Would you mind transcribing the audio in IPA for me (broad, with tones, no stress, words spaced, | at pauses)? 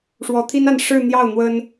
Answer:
ʂwɔ˧˥t̪ʰi˥n a˥˧n ʂɻ̩˥˧n̪jɑ˥˩ʊ̯ n̪wə˥n